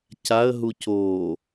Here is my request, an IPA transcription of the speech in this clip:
c a ə̯ ɦ u c oː

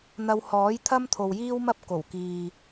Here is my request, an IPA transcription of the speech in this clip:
n̪ ɐ˧ w h ɔː˨˥ j t̪ʰ ɐ˥ m t̪ʰ o˨ w j iː˥ w m ɐ˥ p̚ k o˨˩ w k iː˨

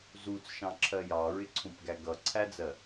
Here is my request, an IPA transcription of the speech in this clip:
z u t͡s ʃ ɑ̃ ǁʰ ɜ j ɑ ɹ ɪ ǀʰ ũ p ɡ æ ɡ ʌ ǀʰ æ d͡z ɜ

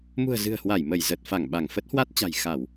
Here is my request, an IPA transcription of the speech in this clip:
m ṳ˨˩ ə̯ z ɨ̤˨˩ ə̯ h w a˧˩ j m ə˧˩ j z ə˨˩ t̚ f a˧˩ ŋ ɓ a˧˩ ŋ f ə˦˥ t̚ h w a˦˥ t̚ t͡ɕ a̤˨˩ j x a˧˩˨ w

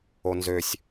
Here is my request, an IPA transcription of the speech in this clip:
o n z ø sʲ

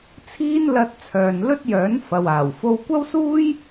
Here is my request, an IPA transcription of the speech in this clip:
t͡sʰ iː˥ n l ɐ˧ t̚ t͡sʰ œː˨ n l ɵ˥ t̚ j œː˨˥ n f ɐ˨ w aː˨˩ w f o˧ w kʷ ɐ˥ w s uː˥ j

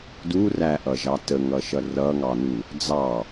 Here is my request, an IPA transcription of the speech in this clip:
d u r æ ʔ ʌ ʒ ɑ t ə ŋ ʌ ʃ ʌ r ʌ ŋ ɑ n u | d͡z ɑ

